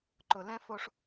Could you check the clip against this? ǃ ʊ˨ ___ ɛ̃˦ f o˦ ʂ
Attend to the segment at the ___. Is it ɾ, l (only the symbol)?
l